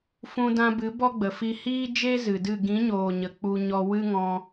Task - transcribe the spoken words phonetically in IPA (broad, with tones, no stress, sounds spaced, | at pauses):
f ũ˧ d ã˧ b ɨ˨˦ b ɔ˦ ɡ͡b ə˨ f i˧ h iː˦ d͡ʒ e˦ z ɨ˨ d ɨ˦˨ ɡ ĩ˨˦ ɲ oː˨ ɲ ə˨ k͡p u˧ ɲ ɔ˧ w ɨ˦ ŋ ɔ̃˧